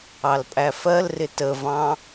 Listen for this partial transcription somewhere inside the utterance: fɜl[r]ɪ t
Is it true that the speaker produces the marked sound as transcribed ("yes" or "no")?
yes